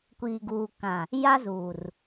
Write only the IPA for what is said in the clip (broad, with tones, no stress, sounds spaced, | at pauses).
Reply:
kʷ iː˨ ɡ uː˨ k ã˨ | j a˦ z uː˨ r